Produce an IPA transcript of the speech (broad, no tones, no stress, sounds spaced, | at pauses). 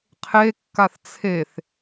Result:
qʰ e kː a θ t͡sʰ e θ